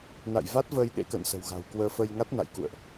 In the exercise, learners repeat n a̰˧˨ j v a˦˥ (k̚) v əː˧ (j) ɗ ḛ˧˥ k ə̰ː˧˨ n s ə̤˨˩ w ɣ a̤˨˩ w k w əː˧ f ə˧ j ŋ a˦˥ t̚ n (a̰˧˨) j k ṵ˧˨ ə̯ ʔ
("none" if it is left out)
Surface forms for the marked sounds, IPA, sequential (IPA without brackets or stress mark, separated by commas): t̚, j, a̰˧˨